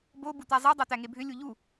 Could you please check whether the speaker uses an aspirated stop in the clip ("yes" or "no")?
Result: no